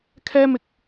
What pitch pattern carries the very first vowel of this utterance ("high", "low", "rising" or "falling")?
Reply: high